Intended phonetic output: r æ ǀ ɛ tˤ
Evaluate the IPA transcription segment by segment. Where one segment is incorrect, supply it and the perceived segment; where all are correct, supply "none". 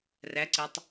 none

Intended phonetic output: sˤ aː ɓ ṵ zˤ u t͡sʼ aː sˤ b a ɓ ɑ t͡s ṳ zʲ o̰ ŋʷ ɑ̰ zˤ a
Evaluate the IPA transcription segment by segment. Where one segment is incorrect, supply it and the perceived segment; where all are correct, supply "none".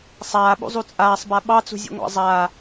o̰ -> ṵ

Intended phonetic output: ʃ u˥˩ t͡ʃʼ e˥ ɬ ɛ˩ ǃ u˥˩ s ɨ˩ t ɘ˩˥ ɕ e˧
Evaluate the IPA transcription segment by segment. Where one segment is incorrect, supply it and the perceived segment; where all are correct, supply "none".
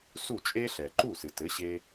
ʃ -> s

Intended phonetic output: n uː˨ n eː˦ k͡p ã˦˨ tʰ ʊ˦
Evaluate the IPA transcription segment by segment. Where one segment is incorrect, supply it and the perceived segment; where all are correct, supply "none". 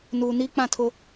eː˦ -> iː˦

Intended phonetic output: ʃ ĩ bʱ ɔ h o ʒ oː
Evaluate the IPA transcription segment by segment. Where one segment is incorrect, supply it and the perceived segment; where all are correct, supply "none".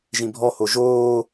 ʃ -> ʒ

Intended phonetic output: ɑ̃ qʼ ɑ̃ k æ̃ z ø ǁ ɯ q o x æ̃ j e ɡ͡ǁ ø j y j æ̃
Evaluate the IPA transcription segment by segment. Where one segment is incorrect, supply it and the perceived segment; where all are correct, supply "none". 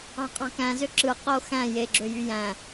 none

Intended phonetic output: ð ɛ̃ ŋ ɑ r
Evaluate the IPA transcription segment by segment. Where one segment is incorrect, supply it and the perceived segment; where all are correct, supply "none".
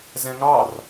ð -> z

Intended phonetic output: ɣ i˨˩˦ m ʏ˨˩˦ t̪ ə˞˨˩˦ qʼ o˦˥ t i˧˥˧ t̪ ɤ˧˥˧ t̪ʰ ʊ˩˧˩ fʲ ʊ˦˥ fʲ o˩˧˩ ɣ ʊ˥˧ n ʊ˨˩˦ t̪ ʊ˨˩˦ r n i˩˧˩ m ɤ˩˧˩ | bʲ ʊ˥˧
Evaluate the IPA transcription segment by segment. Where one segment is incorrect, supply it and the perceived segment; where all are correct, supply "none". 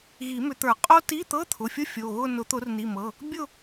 none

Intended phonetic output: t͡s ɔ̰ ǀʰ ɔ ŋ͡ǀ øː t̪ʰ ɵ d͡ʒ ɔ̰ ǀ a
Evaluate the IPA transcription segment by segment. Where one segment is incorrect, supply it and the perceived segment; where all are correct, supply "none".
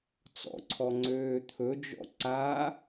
none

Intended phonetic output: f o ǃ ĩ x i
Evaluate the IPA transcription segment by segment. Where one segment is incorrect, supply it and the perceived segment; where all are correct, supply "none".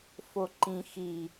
none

